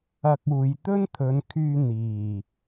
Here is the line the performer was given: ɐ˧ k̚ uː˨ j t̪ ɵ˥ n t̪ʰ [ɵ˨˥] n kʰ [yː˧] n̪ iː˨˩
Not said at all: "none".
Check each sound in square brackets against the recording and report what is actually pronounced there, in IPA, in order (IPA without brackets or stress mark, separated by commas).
ɵ˨˧, yː˧